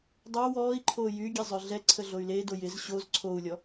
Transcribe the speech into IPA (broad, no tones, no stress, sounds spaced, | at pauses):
dˤ o w ɔː i̯ ǃʰ oː j y ɡʲ e zˤ ø ɮ ɛ ǀʰ ə ɮ o y̯ l e d o j ɪ z ɕ o z ǀʰ o u̯ lʲ ɔ